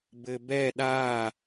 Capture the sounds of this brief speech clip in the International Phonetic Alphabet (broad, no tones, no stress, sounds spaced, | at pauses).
b ɘ b ɛ ɗ a